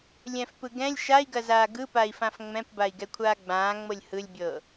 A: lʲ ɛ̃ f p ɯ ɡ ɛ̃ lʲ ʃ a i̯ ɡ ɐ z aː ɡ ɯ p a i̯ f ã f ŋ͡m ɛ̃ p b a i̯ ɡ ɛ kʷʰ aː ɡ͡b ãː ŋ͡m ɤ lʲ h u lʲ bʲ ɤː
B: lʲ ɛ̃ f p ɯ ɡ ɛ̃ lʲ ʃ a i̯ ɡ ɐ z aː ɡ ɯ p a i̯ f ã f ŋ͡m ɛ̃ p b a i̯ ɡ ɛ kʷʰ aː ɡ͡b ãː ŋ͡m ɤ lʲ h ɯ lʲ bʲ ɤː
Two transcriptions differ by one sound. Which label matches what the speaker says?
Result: B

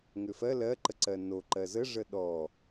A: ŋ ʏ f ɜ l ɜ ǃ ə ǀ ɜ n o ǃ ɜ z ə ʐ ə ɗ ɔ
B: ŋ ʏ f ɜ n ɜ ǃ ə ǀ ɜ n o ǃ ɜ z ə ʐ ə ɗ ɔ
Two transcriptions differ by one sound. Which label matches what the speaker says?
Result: A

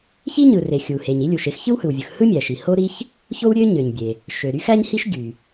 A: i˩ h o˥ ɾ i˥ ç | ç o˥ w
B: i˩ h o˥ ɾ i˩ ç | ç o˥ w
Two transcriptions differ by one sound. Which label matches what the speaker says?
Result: A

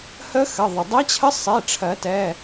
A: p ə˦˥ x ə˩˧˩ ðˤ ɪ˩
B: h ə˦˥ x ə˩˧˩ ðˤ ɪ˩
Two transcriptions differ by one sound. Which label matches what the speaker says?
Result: B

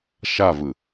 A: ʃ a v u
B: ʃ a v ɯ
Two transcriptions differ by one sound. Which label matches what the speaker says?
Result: B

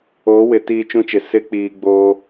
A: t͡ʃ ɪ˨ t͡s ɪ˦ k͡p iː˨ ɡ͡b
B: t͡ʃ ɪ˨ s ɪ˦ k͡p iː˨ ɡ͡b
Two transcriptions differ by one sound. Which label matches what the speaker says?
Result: B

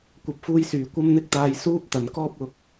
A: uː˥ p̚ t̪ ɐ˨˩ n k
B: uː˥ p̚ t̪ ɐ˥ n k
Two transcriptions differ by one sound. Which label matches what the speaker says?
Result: A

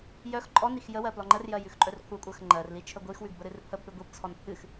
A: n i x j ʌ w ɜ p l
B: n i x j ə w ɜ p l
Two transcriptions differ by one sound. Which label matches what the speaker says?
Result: B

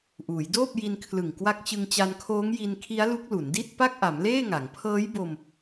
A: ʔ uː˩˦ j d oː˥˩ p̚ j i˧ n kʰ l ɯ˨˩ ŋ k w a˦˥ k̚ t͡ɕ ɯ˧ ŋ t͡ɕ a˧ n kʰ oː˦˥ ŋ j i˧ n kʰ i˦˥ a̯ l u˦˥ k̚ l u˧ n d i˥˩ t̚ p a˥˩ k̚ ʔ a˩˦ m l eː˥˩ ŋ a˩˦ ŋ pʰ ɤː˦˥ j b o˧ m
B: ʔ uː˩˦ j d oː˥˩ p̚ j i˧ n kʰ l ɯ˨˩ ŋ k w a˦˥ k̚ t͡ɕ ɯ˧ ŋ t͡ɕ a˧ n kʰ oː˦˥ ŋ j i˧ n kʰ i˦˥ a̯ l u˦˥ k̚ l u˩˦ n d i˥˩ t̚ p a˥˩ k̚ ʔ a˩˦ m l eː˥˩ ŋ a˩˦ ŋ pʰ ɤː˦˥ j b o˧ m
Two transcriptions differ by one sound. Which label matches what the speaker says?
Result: B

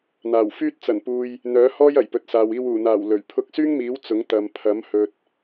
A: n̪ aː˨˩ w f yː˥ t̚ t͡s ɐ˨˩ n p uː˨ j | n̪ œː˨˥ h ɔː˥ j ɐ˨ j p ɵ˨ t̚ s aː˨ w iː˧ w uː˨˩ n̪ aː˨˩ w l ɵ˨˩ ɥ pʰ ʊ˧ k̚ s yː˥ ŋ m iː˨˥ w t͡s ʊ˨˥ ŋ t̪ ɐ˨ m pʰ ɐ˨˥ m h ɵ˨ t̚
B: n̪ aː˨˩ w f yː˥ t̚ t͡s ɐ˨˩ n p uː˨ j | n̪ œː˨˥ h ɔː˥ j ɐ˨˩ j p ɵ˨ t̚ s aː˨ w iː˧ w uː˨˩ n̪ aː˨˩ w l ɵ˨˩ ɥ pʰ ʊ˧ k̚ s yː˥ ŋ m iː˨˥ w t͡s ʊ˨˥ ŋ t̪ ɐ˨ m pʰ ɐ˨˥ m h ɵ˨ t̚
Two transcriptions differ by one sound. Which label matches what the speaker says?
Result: B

